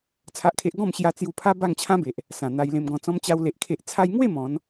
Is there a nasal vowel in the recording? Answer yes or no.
yes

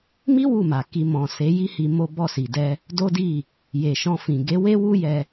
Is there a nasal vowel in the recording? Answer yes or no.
yes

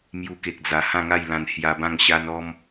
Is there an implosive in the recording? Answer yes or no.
no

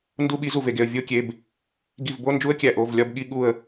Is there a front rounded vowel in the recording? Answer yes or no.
no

